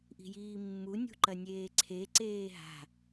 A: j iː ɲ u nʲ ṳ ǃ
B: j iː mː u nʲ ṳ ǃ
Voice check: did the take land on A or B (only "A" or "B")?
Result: B